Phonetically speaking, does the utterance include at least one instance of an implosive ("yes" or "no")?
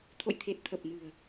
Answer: no